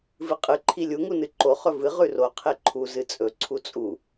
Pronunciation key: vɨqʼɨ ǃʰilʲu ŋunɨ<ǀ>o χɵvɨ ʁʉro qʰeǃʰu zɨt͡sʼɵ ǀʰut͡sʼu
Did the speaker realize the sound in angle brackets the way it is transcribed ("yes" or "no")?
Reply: no